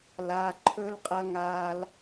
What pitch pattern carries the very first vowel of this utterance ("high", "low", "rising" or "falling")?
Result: low